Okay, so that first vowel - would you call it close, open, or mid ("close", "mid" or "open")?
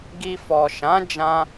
close